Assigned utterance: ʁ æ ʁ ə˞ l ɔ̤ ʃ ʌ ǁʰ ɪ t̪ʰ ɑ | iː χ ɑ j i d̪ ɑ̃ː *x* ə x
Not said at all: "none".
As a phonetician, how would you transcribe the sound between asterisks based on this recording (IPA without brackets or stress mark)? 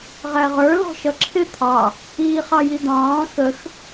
x